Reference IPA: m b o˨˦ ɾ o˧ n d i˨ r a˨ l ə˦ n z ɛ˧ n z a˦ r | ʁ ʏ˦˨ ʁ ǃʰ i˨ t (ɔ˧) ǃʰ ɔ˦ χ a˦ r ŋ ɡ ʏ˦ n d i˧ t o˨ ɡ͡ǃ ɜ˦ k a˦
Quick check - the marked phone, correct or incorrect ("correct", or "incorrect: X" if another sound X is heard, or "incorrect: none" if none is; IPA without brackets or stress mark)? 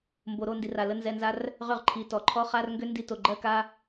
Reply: incorrect: ɔ˨